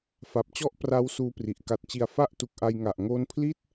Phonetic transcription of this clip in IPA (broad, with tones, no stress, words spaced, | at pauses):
fa˨˩p̚t͡ɕɔ˥˩ʔ pra˦˥w suː˦˥pri˨˩ʔ ka˨˩t̚t͡ɕi˨˩a̯ fa˥˩ʔ tu˨˩k̚ʔa˧j ŋa˨˩ʔ ŋoː˦˥npʰli˥˩t̚